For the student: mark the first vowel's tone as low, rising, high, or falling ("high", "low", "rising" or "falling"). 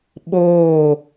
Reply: falling